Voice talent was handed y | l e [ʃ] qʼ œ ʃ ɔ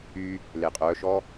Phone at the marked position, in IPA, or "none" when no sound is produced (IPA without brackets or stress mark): none